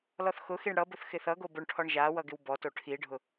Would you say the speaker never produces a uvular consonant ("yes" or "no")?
yes